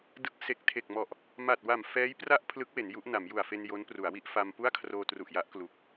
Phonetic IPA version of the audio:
d ɯ˦˥ k̚ s e˨˩ k̚ tʰ e˨˩ k̚ m ɔ˨˩ ʔ | m a˨˩ t̚ w a˨˩ m f ɛː˦˥ j p r a˥˩ ʔ pʰ l ɯ˦˥ k̚ w e˩˦ n j u˦˥ ʔ n a˩˦ m j u˨˩ a̯ f e˧ n j o˦˥ n p r u˩˦ a̯ w i˦˥ ʔ f a˧ m p u˥˩ a̯ kʰ r oː˧ t r u˨˩ ʔ j a˦˥ ʔ k l u˨˩ k̚

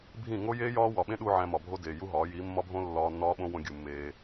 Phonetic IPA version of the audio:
bʱ ĩ˦˨ ŋ o˦ j eː˦ j ɒː˦ w ɒ˨ ɓ ẽ˦ ɗ u˧ ʕ æ̃˧ m ɒ˨ bʱ o˦ d eː˨ j u˦ ɦ ɒː˨˦ j iː˨˦ mː ɒ˦ bʱ õ˦ lː ɒː˧ nː ɒː˦ ɓ õ˦ w õ˧ ɡʲ u˨ mː eː˧

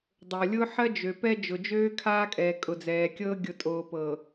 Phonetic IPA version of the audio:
dˤ o˨ lʲ ʊː˦ ħ ɜ˦ d͡ʒ ø˨ p ɛ˦ d͡ʒ ʊ˨ d͡ʒ øː˦ kʰ aː˦ kʼ ɛː˨ kʼ ʊ˨ d͡z ɛː˨ kʲ ɤː˦ ɡʲ ʊ˨ tʼ oː˨ p ɤ˨

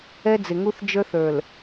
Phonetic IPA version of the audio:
ɛ˦ d͡z ɪ˨ ŋ u˦ θ d͡ʒ ə˞˦ θ ə˞˨ l

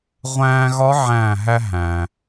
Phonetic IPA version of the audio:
ʁʷ æ̃ː˧ ɣ ɒ˧˥ ʕ æ̃ː˧˩ ɦ æ˧ ɦ æ̃ː˩

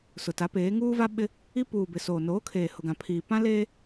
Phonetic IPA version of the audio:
s ʊ˨ t a˨˦ p eː˨˦ ŋ uː˦ v a˦ ɓ ɪ˦ | i˦ p uː˨ b ɪ˨ s oː˨ n oː˨˦ kʰ eː˨ h ʊ˨ ɡ ã˨ pʰ iː˨ p ã˦ l eː˦

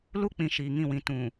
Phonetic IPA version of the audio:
l u˦ k͡p ĩ˨ ʃ iː˨ ŋ ĩ˦˨ w ĩ˨ t ũ˨

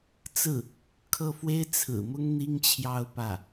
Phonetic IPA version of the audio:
t͡s ɹ̩˥˩ | kʰ ɤ˥˩ f w e˥ ɪ̯ t͡sʰ ɹ̩˨˩ m ʊ˥ ŋ n̪ i˥ ŋ t͡ɕʰ j ɑ˥˧ ʊ̯ p ä˥˩

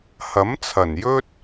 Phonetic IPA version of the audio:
h ɐ˨˥ m t͡sʰ ɐ˨˩ n j ɵ˥ t̚

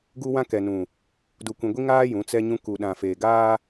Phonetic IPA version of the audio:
ɡ u˦ w ã˦ k ɛ˨ n ũ˨ | d u˨ kʷ ĩ˨ ɡʷ i˦ ŋ aː˦ j ũ˨˦ t͡s ɛ˦ ɲ ũ˦ k u˨ ɗ ã˨ f eː˨ ɡ aː˦

